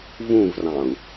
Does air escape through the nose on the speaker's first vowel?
yes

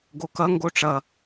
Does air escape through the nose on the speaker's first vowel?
no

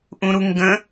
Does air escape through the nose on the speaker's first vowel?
yes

